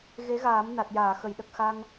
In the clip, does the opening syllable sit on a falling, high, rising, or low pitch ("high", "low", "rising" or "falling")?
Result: rising